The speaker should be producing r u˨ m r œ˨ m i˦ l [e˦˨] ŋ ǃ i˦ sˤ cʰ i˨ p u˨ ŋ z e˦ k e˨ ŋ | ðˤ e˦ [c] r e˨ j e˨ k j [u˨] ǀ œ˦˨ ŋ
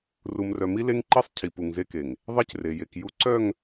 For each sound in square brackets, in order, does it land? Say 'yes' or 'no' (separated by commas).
no, yes, no